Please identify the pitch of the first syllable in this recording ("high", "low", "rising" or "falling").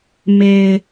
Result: low